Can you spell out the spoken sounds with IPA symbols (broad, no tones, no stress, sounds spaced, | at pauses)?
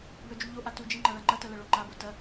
b œ d͡ʒ u ʎ o ʔ a t u d͡ʒ i ŋ͡ǃ a ɭ a ŋ͡ǃ ɐ t ɐ l ɐ ɭ o ŋ͡ǃ a b o t ɐ